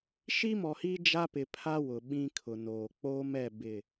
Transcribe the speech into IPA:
ʃ i˦ m ɔ˨ h iː˦ d͡ʒ a˦ p ɪ˨ pʰ a˦ w ʊ˨ ɓ ĩ˦ kʰ ʊ˨ n oː˨ k͡p oː˦ m ɛ˦˨ b ɪ˦˨

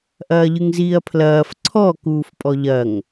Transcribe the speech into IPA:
ʔ ɐː ʎ ɨ ŋ z iː ɐ̯ pʰ l ɐː f ǀʰ ɔ k uː f pʼ ɔ ʎ ɐ ŋ

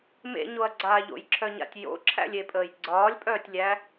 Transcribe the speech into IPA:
m ḛ ɲ o ɐ̯ ɡ͡ǀ aː ʎ o̰ j ǁʰ œ ɲ a̰ tʲ j o̰ ǁʰ æ̰ lʲ e pʼ əː j ɡ͡ǀ ɒː lʲ pʼ œː tʲ lʲ æ

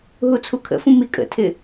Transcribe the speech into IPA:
ɦ u t͡sʰ u kʰ ə̰ f ũ m i kʼ ə̰ tʰ ɪ

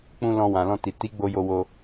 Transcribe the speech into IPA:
k͡p ũ˦ l ɔ̃˧ w ã˨ l ɔ̃˧ t i˨ t i˨˦ ɡ͡b o˧ j o˧ w o˧

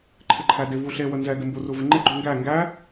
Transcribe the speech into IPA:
ǃʰ ɪ ǃʰ æ d ɪ v u ɬ e w ə n z ɛ ɡ ɪ m b u r u v ɪ ŋ͡ǃ ɪ ɡ͡ǃ u ŋ ɡ æ ŋ ɡ æ

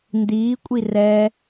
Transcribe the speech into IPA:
n d iː kʷʼ i r ɛ

